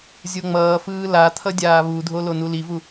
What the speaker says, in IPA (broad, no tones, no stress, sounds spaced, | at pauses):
zʲ o ŋ͡m ʌː f ɯː l a t̪ʰ ʌ dʲ aː β u dʱ o l o n u l i v u